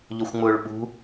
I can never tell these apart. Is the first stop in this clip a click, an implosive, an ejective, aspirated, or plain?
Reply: implosive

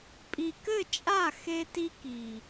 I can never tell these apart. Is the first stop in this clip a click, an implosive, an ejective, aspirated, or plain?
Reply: ejective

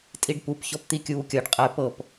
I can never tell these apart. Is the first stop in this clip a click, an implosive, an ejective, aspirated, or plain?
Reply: ejective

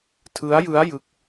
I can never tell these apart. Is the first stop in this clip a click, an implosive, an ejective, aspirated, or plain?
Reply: aspirated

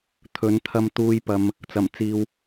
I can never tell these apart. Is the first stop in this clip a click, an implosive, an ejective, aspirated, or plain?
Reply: aspirated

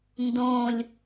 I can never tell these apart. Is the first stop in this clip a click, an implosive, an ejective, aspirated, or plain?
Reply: plain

